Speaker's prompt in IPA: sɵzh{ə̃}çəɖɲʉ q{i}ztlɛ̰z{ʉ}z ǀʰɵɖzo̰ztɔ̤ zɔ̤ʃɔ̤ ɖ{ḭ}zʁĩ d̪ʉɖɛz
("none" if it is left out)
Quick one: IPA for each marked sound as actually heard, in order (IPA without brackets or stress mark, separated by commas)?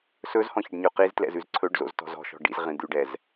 ɔ̃, i, ʉ, ḭ